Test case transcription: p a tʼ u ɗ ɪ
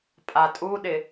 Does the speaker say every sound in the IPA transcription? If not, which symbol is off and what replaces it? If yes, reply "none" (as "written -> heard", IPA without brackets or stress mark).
p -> pʼ